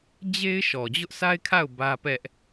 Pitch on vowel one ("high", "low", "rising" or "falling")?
high